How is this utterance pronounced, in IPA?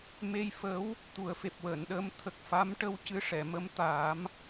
m e˧ j f ə˧˥ w | t̪ u˨˩˦ ə̯ f e˨˩ p̚ w əː˨˩˨ n ɗ əː˧ m t̪ʰ ə˨˩ k̚ f a˧˥ m ʈ ə˧ w c ɨ˧˥ ʂ ɛ˨˩˨ m ə˧˥ m t̪ aː˨˩˦ m

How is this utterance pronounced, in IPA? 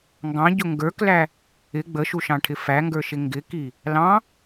ŋ ɡ ɑ̃ ɟ ʊ ŋ ɡ ə˞ k l æ | ɪ ɡ͡b ə ʃ u ʃ ɑ̃ ʈʰ ɪ f æ ŋ ɡ ə˞ ʃ ɪ ŋ ɡ ɪ k i | l ɑ̃

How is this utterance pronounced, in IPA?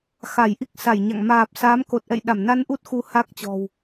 x a˧˩ j ʔ i˦˥ k̚ s a˧˩ j ɲ a̰˧˨ ŋ m aː˨˩ p̚ s a˨˦ m k o˨˩ t̚ ʔ ɛ̰˧˨ j ɗ a˧˩ m n a˧ n ʔ u˦˥ t̚ x u˨˦ h a˦˥ k̚ t͡ɕ ɔ̤˨˩ w

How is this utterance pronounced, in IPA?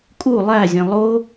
kʼ u lˠ æ zʲ ẽ lˠ o

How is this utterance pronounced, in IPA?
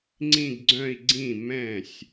ŋ͡ǀ ĩ˥˧ ɡ ɡ͡ǀ œ̃˥˧ i̯ ɡ͡ǀ ĩ˥˩ m ɛ̃˥˩ sʲ

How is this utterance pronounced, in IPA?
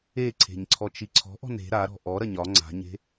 e ǀʰ e̤ ɲ ǀʰ ɔ t͡ʃ i ǀʰ ɔ̤ ʔ ɔ̤ n e̤ ɾ a ɾ ɔ̤ ʔ ɔ ɾ ɐ ɲ ɒ ŋ͡ǀ a̤ ɲ e̤

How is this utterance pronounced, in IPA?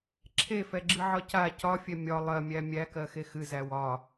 ǁʰ e f ɛ ɡ͡ǁ ɨ ʕ ɒ c a c ɒ fʲ ɛ mʲ ɒ lˠ ɜ mʲ æ mʲ æ k ɜ x e x ɨ z æ w ɒ

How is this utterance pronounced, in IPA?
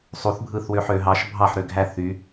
sˤ u θ bʱ ɯ θ w ø ħ ø ɦ ɑ ʃ bʱ ɑ ħ ɾ ø ɡʱ æ θ y

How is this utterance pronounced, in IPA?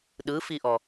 ɗ ɯ f i ʔ ɔ

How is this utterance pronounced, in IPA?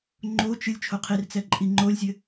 ŋ͡ǃ o t͡ʃ ɨ lʲ t͡ʃʰ o qʰ i r t͡s ɛ ǃʼ i ŋ͡ǃ o lʲ zʲ ɘ

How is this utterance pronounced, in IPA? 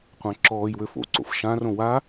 qʷ ã ǁ ɔː j w ø f o̰ ǀ o̰ f ʃ ã r õ w a

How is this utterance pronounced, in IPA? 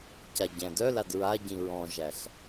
c a ɟ æ̃ d œ l a d ɹ a ɟ ĩ ɹ ɔ̃ ʒ æ ɬ

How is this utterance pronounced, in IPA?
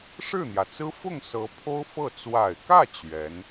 ʂ ɻ̩˥˩ n̪ j ä˩ t͡s ɹ̩˥ f ʊ˥˩ ŋ s ɤ˧˥ pʰ o˥ ʊ̯ f ɤ˥˩ t͡s w a˨˩ ɪ̯ k ä˥˩ t͡ɕ ɥ ɛ˧˥ n

